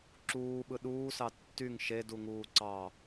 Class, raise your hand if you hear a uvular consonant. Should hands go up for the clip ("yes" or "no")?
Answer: no